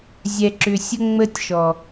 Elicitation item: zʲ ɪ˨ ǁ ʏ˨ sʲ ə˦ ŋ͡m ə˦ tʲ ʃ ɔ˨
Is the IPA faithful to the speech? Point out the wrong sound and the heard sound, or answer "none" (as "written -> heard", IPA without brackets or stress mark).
ɪ˨ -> ɛ˨